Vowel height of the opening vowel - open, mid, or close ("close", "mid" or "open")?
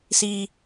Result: close